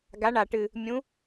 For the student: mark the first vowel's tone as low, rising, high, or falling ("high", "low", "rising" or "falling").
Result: rising